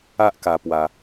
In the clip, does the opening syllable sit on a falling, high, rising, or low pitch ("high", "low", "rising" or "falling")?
high